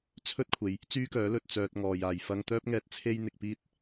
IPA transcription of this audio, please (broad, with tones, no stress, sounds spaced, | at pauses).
t͡sʰ ɵ˥ t̚ kʷʰ e˨˧ j | t͡s yː˥ k œː˨˥ l ɵ˨ t̚ t͡s œː˧ t̚ ŋ ɔː˨ j aː˨ j f ɐ˥ ŋ t̪ œː˥ p̚ ŋ ɛː˧ t̚ t͡sʰ e˥ j n̪ ɪ˧ k̚ p iː˥ t̚